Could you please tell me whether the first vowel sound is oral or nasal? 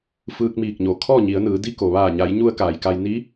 oral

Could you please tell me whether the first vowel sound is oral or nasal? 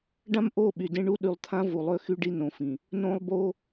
nasal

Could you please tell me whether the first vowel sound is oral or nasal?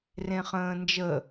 nasal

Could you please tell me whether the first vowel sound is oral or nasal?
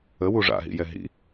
oral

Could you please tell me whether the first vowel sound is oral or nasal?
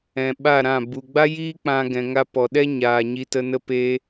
nasal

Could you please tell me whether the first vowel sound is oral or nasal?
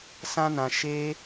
nasal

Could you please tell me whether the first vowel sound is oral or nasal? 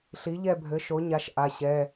oral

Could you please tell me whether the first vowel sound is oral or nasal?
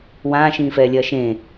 nasal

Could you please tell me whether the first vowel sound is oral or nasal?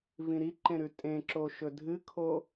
nasal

